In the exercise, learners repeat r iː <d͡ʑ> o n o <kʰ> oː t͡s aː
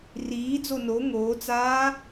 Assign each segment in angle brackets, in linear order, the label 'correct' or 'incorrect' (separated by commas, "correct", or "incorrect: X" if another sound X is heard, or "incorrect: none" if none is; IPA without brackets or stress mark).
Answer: incorrect: d͡z, incorrect: ŋ